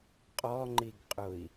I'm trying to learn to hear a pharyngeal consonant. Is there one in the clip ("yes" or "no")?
no